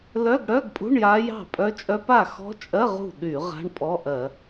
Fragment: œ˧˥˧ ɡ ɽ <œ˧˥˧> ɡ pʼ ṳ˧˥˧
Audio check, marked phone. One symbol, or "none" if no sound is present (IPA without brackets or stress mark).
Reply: œ˧˥˧